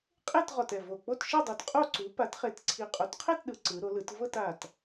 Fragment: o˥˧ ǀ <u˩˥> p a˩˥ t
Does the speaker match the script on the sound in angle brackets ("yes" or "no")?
yes